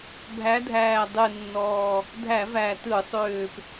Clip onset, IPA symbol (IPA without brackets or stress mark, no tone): bʱ